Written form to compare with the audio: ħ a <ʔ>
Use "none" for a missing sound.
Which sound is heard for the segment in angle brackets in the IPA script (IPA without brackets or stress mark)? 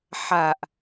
ʔ